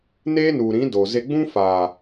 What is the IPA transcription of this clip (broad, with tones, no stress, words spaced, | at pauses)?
neː˦nu˨ɾĩ˨˦ do˨ ze˧ɡ͡bũ˦faː˨